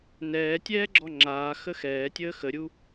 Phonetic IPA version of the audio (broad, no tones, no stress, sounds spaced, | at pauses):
n ɛː tʲ ɛː ɡ͡ǁ ɔ ŋ͡ǁ aː x ə x ɛː tʲ əː x ə ɾʲ u